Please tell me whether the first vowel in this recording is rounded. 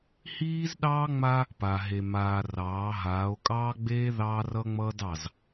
no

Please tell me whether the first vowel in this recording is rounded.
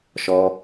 yes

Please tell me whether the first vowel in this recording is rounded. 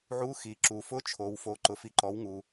yes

